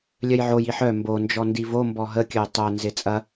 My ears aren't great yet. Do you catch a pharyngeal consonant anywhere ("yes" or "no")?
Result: yes